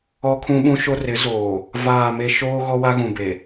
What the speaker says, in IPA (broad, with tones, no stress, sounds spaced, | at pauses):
ɔ˦ kʰ ũ˦ ɓ ũ˦ ʃ o˦ r ɪ˨˦ z oː˨ | v aː˦˨ m e˦ ʃ oː˦ ɣ ɔ˦ w a˦ ɣ ũ˨ b e˨